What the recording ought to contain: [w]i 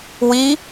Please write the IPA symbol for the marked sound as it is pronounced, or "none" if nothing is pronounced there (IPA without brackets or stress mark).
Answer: w